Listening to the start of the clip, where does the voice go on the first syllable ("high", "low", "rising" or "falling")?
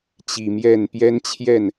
low